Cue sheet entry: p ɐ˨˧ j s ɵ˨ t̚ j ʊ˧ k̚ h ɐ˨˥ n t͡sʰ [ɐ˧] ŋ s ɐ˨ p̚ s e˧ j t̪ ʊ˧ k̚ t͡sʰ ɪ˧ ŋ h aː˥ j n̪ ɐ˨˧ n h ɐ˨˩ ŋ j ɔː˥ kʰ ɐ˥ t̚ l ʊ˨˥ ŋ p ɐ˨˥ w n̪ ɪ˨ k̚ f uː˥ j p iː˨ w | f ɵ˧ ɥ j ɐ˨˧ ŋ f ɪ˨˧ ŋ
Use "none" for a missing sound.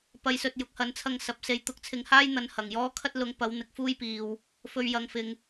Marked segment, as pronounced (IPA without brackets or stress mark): ɐ˧